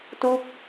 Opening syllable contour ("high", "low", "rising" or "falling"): falling